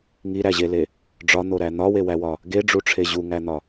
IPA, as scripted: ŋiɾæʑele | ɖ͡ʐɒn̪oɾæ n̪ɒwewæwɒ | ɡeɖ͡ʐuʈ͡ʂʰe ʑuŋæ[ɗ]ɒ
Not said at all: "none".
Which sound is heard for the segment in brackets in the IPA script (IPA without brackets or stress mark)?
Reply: n̪